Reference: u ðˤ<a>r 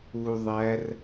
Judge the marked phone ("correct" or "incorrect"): incorrect